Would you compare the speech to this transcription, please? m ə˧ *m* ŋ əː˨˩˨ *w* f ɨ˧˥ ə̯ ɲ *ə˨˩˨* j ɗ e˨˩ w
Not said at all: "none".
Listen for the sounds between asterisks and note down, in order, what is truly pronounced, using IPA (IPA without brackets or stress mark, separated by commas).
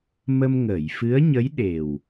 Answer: m, j, ə˧˥